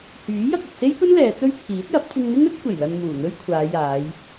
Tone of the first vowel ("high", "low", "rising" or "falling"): rising